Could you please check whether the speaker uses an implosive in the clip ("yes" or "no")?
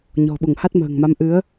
yes